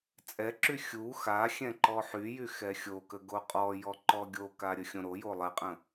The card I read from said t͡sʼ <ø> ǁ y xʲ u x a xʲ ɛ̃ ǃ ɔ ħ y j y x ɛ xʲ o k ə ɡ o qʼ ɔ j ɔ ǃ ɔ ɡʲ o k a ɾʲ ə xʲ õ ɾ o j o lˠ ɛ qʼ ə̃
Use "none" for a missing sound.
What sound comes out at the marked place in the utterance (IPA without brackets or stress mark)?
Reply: ɛ